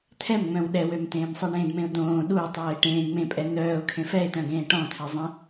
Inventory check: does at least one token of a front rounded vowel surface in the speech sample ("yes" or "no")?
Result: yes